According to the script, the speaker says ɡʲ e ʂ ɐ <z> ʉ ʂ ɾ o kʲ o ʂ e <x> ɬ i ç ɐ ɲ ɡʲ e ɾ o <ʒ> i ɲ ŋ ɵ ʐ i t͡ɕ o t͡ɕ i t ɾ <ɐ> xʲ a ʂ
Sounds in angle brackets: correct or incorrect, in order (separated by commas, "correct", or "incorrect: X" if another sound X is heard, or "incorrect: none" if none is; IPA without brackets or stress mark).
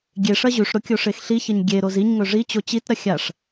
incorrect: ʑ, correct, incorrect: z, correct